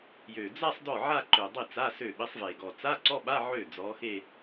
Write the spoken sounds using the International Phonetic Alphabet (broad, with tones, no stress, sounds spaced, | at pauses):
j ø˨˩ d͡z a˥˧ sˤ d ɔ˥˩ ʕ a˥˧ ǃ ø˨˩ dˤ i˥˩ t͡s a˧˥˧ s ø˥˩ ɓ i˨˥ sˤ v e˨˩ ɡ ɔ˨˩ t͡s a˧˥˧ ǀ ɔ˧˥˧ ɓ a˧˥˧ ʕ ø˥˩ d͡z ɔ˨˥ x e˥˧